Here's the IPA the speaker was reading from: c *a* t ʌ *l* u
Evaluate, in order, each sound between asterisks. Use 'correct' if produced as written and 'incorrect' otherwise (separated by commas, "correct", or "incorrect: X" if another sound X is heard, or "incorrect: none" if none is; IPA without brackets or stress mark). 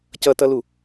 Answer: incorrect: ʌ, correct